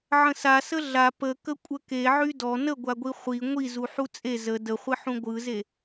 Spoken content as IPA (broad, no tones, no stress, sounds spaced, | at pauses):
ʕ ə̃ s a s ə ɮ a p ə k ə kʷʼ ə k e ʕ y d ɔ n ə ɡʷ a ɡʷ i χʷ i ŋʷ i z u ħ u t͡sʼ e z ə d ə χʷ ɪ ħ ũ ɡʷ ɯ z e